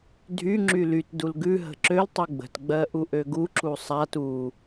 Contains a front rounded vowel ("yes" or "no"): yes